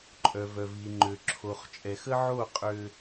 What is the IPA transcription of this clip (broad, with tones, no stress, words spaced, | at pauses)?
ǃʼœ˨ vœ˨vi˨ ŋ͡ǃø˨ǁʰo˨χ t͡ʃʼɛ˨xə˦ ʕo˦˨ qʼø˦